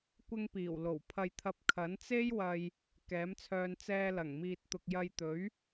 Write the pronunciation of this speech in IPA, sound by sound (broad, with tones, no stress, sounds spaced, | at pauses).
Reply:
kʷ ɪ˧ ŋ p iː˨˩ w l o˨˩ w pʰ ɐ˧ j t̪ʰ ɐ˧ p̚ kʰ ɐ˨˥ n t͡s e˥ j w ɐ˧ j | k ɛː˨˥ m t͡sʰ œː˧ n t͡s ɛː˧ l ɐ˨˩ ŋ m iː˨ t̚ t̪ ʊ˨ k̚ j ɐ˧ j t̪ ɵ˨˥ ɥ